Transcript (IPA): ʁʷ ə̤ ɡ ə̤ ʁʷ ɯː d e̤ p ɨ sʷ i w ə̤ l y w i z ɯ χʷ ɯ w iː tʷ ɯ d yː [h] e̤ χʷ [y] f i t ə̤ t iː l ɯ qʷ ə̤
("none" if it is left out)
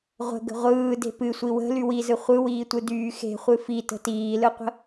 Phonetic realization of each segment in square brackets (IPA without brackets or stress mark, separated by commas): x, ɨ